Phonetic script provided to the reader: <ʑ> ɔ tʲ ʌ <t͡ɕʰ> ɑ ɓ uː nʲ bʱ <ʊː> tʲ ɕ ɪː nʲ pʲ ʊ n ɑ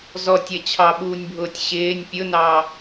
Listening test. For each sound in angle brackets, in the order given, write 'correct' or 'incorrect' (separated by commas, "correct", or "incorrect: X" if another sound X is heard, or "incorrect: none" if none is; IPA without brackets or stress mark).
incorrect: z, correct, correct